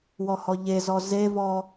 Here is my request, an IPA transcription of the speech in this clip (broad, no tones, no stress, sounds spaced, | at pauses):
w ɔ h ɔ ʎ e z ɔ z e v ɔ